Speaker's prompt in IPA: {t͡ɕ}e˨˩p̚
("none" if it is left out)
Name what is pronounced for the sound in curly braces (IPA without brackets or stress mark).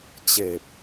t͡ɕ